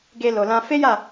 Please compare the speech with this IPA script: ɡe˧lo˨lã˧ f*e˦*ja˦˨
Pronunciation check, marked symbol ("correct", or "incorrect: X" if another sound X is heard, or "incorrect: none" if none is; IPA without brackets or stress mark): correct